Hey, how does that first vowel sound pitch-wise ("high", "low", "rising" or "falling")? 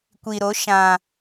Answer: low